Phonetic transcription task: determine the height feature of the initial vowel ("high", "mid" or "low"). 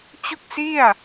high